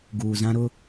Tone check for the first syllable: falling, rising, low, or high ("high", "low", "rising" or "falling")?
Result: low